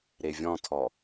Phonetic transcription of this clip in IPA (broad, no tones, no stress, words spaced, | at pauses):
ɾevʲɔ̃tʰɔ